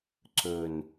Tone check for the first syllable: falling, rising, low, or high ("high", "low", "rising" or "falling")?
low